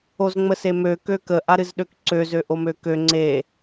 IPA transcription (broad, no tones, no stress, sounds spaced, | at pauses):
o z ŋ͡m ə s e m ø k ø k ə ʔ a ɾ ɨ z ɗ ø k ǀ ø z ø ʔ o m ø k ø ŋ͡ǀ e